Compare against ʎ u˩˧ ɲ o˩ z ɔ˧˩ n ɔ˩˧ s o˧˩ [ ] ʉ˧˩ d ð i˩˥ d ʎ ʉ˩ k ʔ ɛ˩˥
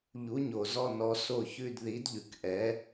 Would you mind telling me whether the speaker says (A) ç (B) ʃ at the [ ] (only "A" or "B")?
A